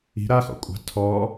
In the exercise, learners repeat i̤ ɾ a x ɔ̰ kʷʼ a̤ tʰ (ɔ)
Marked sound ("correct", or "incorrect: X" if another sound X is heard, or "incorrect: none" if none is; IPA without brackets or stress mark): correct